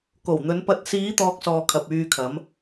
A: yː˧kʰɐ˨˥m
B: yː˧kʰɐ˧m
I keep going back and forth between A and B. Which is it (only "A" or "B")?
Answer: A